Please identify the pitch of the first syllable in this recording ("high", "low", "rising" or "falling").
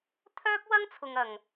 high